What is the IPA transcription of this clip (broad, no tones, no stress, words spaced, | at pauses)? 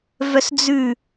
vœsd͡zʉ